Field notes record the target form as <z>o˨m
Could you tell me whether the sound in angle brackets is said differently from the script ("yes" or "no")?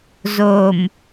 no